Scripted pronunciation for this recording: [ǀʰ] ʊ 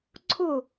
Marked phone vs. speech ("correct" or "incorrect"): correct